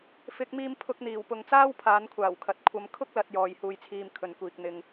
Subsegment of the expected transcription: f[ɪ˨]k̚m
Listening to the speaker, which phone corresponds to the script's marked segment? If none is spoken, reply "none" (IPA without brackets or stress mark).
ɪ˨˥